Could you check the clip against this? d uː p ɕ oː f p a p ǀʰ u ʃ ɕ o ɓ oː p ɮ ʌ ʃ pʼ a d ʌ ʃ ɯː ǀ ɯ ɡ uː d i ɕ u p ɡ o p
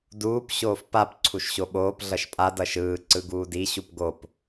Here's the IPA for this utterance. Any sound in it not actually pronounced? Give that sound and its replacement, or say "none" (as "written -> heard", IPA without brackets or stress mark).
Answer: none